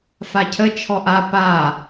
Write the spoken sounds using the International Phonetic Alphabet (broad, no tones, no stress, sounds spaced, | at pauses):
f a cʰ ə t͡ʃʰ ɔ ʔ a p a